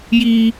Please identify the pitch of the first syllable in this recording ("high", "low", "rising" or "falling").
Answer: high